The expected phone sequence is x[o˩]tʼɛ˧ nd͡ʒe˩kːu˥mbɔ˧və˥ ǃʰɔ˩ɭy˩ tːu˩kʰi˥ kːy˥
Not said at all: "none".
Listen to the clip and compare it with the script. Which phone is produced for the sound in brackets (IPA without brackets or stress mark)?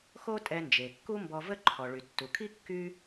o˥